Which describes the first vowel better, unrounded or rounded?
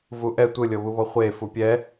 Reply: rounded